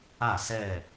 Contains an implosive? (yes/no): no